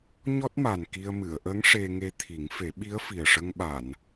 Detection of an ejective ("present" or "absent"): absent